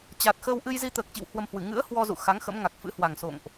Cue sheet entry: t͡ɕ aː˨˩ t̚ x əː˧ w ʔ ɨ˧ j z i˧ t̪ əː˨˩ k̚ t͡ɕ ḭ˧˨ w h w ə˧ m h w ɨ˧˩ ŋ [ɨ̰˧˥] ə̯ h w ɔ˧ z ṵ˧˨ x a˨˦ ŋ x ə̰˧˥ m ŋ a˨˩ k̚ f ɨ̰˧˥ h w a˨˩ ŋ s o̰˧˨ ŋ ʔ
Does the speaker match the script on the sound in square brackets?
yes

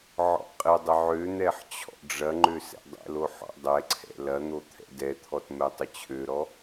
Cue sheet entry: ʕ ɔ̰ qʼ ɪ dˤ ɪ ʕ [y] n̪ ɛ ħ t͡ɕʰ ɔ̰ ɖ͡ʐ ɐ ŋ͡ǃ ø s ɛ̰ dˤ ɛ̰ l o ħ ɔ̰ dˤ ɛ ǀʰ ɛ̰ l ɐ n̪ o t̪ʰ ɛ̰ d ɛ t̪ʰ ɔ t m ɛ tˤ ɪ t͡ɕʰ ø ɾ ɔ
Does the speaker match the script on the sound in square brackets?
no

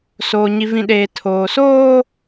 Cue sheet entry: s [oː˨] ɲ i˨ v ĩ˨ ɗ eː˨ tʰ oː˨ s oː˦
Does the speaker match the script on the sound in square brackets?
yes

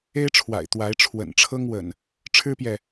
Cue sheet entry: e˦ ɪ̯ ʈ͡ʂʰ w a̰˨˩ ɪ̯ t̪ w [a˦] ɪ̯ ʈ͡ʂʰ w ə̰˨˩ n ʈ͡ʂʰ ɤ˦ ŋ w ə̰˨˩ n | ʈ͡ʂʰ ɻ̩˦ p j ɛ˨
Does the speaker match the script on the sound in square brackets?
no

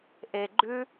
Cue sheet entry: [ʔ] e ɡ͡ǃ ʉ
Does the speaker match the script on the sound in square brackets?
yes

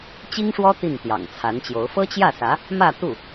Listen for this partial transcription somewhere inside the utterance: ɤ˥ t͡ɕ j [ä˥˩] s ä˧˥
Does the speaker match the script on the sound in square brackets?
yes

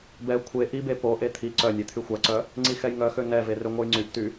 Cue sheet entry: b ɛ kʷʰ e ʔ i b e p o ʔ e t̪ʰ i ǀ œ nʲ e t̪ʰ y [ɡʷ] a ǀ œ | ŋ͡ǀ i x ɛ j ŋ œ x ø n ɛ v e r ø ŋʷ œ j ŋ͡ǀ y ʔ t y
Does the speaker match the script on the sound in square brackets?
no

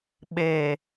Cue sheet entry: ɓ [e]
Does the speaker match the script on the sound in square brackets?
yes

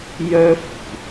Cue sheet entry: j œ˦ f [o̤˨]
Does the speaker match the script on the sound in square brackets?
no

